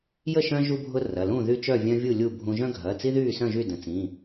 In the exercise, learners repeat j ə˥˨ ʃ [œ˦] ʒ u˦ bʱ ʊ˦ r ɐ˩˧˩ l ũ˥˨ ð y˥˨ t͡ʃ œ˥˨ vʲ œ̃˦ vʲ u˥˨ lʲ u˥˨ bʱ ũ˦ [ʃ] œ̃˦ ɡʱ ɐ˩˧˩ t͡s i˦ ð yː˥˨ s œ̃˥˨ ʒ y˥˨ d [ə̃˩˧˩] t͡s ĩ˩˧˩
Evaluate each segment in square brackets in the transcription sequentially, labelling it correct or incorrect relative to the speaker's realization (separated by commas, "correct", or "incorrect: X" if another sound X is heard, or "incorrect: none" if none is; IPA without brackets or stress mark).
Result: incorrect: œ̃˦, incorrect: ʒ, correct